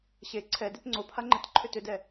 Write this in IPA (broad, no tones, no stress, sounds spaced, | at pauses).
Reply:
ɕ e ǀʰ ɛ d e t ŋ͡ǀ o pʰ a ŋ͡ǃ e t ǃʰ ʏ t ʏ d ɛ